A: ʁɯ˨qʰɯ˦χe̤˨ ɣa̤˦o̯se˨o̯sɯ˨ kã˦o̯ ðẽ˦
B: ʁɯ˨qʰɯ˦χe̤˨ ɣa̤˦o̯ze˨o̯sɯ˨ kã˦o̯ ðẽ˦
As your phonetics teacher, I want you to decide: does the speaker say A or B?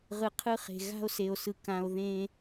A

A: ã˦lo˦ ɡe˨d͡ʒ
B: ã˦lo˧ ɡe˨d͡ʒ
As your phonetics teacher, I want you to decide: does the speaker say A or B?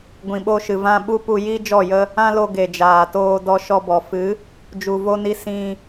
B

